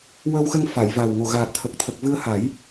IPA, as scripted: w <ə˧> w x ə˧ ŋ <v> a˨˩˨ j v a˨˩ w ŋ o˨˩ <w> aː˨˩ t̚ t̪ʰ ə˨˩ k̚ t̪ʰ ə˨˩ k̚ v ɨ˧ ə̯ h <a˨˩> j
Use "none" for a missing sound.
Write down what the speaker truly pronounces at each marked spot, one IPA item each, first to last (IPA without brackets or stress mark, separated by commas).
ə˧, f, ɣ, a˨˩˦